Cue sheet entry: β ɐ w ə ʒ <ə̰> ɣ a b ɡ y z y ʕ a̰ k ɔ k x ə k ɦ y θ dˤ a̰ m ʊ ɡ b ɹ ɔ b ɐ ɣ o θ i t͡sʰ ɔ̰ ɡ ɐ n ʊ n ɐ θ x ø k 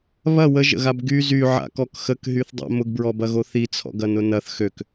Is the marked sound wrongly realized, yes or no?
no